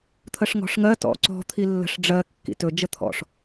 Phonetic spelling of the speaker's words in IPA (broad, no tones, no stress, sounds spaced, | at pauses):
t̪ʰ ə ʂ ŋ ɔ̤ ʂ ŋ ɜ t ɔ̰ ǀ ɔ̤ t̪ʰ i lː ə̤ ʂ ɖ͡ʐ ɜ kː ḭ t ɵ d͡ʒ ə t̪ʰ ɔ̰ ʂ